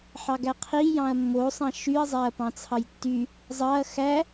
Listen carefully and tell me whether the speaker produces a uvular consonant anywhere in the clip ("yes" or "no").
yes